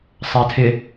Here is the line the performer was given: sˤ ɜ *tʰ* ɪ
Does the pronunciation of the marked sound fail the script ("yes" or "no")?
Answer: no